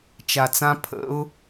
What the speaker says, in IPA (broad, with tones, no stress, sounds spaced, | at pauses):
t͡ʃ a˨ t͡s ã˦ pʰ ə̰˨˦ ʊ̯